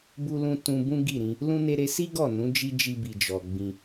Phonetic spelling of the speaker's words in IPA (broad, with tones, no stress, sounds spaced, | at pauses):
b u˧ l ũ˧ t ũ˧ b ũ˦ ɡ i˦˨ ɾ ĩ˧ | l ũ˦ n e˧ ɾ e˧ s i˦ ɡ ɔ˦˨ n ũ˨˦ d͡ʒ i˦ d͡ʒ i˧ b i˨ d͡ʒ ɔ˨ ɡ͡b ĩ˧